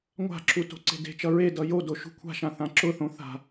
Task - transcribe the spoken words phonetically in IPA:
ŋʷa̤ǁu to̤ǀe̤de̤t͡ʃʌ ɹedʌ jodo ʃṳkʷʰa̤ʃã θãǁʊθõ θa̤

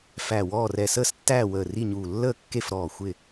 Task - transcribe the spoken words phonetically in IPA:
fæ˧˩wɔː˥˨r ɛ˧˩səː˥˨stːæː˥˨ wəː˧˩ri˥˨ɲuː˧˩ lːəː˥˨kːe˥˨fɾɔː˧˩ xʷɪ˥˨

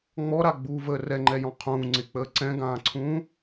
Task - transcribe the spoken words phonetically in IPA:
ŋ͡mɔɾaɡ͡buːvəː rɛŋ͡ǃɛjɔ̃ qʰũː ŋ͡ǀɪk͡pəː ǀɛ̃ɡãːǀʰũː

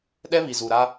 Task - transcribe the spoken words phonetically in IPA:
ɗɛ˦βi˨zu˨ ɾa˦

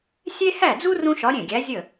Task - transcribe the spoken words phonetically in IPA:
sʲe˥ hæ˥˩d͡zu˥ rũ˥ʃɒ˧˥ɾʲẽ˥˩ɡʲæ˧˥ zʲə˥˩

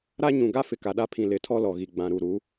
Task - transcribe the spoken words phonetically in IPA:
ɾa˦ ɲũ˨ɡa˦ fɪ˨ka˨ɗa˦pʰĩ˨ lɪ˨˦tʰɔ˦ lɔ˨ɣi˨ɡ͡bã˨ ɾu˨ɾu˨˦

